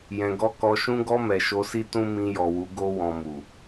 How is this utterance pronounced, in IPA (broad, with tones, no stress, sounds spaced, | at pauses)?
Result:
j ɛ̃˨ ɡ ɔ˧ k ɔ˨ ʃ ũ˧ ɡ ɔ˧ m ɛ˨ ʃ o˧ s i˦ t ũ˦ m ĩ˧ j ɔ˨ w u˨˦ ɡ o˧ w ɔ̃˨ m u˨